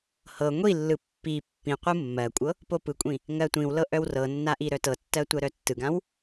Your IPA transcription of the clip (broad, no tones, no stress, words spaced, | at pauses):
hɤ ŋʷilːɯ pːi pːĩqʷɯ mːɜkʷʼɤ | popɯkʷʼĩ | ŋɜtʷĩwlɤ ʔœwrɤnːa ʔiɾœtɤtːɜ tʷɜɾœtːɯɡãw